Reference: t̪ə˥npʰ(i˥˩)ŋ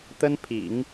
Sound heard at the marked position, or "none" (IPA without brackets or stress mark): ḭ˨˩˦